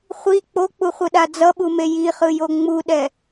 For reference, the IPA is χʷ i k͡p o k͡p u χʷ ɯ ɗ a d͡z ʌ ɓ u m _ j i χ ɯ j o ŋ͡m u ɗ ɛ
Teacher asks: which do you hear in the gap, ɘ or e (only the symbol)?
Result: e